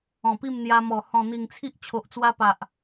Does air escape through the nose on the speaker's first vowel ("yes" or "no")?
yes